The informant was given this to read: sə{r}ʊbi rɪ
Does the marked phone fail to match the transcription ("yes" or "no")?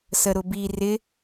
yes